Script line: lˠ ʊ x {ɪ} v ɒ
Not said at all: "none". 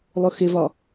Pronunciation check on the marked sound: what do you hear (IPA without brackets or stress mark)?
ɪ